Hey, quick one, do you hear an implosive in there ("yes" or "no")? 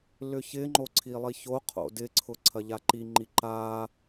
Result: no